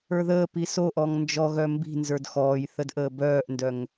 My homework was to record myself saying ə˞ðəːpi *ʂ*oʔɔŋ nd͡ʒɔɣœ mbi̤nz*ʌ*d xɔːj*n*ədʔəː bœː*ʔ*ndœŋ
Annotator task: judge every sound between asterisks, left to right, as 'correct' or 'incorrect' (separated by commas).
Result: incorrect, incorrect, incorrect, correct